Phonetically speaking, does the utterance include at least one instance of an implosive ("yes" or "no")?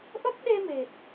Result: yes